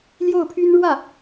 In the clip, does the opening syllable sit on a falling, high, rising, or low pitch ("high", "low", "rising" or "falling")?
falling